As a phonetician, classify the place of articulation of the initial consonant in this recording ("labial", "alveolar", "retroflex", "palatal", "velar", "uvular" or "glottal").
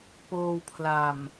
labial